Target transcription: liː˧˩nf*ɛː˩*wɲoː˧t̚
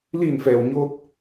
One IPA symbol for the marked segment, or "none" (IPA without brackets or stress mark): ɛː˩